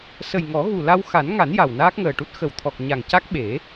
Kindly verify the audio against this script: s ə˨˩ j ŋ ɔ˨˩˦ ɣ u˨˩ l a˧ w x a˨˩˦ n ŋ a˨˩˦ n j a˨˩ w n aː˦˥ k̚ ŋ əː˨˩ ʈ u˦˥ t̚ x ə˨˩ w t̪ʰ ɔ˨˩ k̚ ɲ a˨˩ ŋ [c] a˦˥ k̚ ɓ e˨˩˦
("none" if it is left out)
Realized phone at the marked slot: c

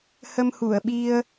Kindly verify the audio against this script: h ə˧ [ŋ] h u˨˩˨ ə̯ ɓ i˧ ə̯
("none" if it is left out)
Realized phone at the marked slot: m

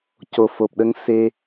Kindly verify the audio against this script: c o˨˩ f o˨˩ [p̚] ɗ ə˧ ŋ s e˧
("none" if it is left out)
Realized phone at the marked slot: p̚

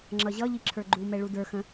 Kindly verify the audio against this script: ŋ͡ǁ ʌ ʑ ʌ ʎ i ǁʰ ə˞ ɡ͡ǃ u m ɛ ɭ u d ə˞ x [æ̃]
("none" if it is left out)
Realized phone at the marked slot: ə̃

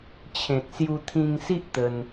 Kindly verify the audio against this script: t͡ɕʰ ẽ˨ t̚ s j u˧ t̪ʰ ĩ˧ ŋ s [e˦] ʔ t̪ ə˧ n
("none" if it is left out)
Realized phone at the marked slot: i˦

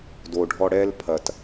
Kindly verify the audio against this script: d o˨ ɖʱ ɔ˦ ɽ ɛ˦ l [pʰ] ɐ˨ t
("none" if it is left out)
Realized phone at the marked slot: pʰ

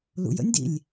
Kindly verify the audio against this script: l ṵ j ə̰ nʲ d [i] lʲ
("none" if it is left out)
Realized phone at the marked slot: ḭ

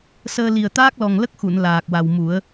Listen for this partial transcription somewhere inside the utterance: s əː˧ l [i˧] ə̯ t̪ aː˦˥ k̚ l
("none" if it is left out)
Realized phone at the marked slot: i˨˩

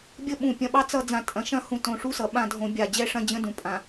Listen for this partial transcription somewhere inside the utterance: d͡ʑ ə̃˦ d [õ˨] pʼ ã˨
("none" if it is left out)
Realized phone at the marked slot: ũ˨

